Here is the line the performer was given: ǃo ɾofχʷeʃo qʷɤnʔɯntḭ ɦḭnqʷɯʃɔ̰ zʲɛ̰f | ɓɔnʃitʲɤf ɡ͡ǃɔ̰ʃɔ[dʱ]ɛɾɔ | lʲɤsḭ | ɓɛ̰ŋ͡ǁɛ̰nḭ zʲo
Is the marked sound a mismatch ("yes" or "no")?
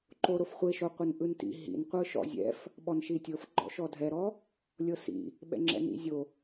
no